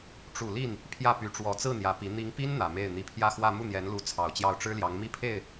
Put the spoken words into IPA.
ʈ͡ʂu˨˩ li˥˩n | pʰjä˥˩py˧˥ ʈ͡ʂwɔ˨˩ t͡sɹ̩˥˩ n̪jä˧˥pi˧˥ n̪i˧˥ŋpi˥n n̪ä˨˩me˥˩ɪ̯ n̪i˧˥pʰjä˥˧xwä˥˧ mu˥˩n̪jɛ˧˥nlu˧˥ t͡sʰɑ˨˩ʊ̯t͡ɕjɑ˥˩ʊ̯ ʈ͡ʂɻ̩˥ljɑ˧˥ŋmi˥pʰe˥˩ɪ̯

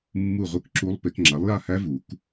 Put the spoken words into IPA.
mːu˥˨ʁʷɯ˥˨k ǁu˦˥lˠpe˨˥k ŋ͡ǁa˨˥lˠja˥˨hæ˦˥vu˨˩˦k

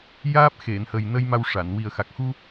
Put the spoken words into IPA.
jaː˦˥p̚ xe˨˩˨nhə˨˩jnə˧j ma˧wʂa˨˩˨n wi˨˩ə̯xa˨˩k̚xu˧

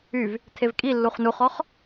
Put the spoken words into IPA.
yv | tʰevkʼilːuχ nuχɔχ

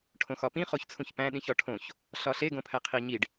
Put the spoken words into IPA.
ʈʰõxɒpĩ χoçt͡sʰũçpæ̃ ɗĩçɒʈʰõç | ɬɒɬe ɡõpʰæqʰiɲiɖ

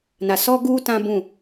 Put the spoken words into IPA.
na˨sɔ˦ɡuː˦ tã˦bũ˦˨

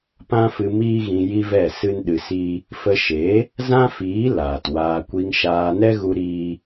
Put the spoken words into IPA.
pã˦fɨ˧ miː˦ɣĩ˧ ji˦vɛ˦˨sɨ˦nɗɨ˧ si˦ | fə˧ʃe˨˦ | zã˦fiː˨˦ laː˨twaː˧ kʷi˧ŋʃaː˧ nɛ˦ɣu˧ ɾiː˦

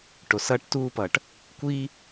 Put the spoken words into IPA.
ʈo˩sʌː˧ʈtuː˧pʌː˩ʈ | kʷiː˧

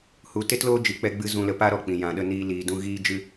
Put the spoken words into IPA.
hu˧ te˦tloː˦ d͡ʒi˧k͡pɛ˦ɡ͡bɨ˦ zũ˧lə˧ pa˦ɾɔ˧k͡pĩ˨ jã˨ɗə˧ niː˦liː˧dũ˦ ɣiː˦d͡ʒɨ˦

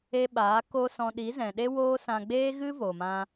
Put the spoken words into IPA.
e˧ ɓaː˨˦ ko˦sɔ̃˧ ɗi˨˦zɛ̃˨ ɗe˦woː˦sã˧ ɡ͡beː˦ɣɨ˦ vo˨mã˧

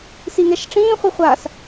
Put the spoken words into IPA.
siŋɛʃʈ͡ʂĩː χʷiχʷas

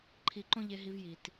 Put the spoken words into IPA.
ǃʰi˧ǃõ˥ʎe˧ɦi˧v ji˩t

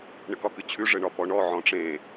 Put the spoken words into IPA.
ɳɘkɒkɨt͡ɕʰʉ ʐɘɳɒpɔɳɔ ʕɔ̃ʈ͡ʂẽ

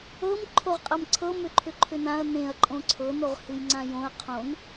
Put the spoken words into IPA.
ɤm ǃʰoʁqʼɤmǀʰɤ mʏǃʰʏǃʰʏnãɐ̯ nẽɐ̯ ǃʼõǀʰɤ noʁhɨjŋ͡ǀãjõɐ̯ qʰõn

